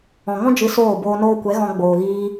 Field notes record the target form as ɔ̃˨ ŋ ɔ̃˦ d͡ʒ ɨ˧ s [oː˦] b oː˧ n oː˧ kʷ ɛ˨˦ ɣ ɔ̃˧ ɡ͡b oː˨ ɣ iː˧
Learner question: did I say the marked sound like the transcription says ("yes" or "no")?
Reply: no